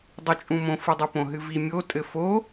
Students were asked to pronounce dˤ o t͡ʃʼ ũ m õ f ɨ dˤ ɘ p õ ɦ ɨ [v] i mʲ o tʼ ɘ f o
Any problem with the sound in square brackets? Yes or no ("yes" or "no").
no